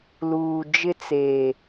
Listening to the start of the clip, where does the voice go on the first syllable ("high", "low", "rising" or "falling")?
low